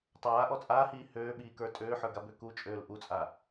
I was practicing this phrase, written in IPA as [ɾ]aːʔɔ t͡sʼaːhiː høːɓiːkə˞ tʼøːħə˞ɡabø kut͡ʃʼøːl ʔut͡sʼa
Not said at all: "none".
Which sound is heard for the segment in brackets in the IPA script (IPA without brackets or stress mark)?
tˤ